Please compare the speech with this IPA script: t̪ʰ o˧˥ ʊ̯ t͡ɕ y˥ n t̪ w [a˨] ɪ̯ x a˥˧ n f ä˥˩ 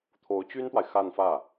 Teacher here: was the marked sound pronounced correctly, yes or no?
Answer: yes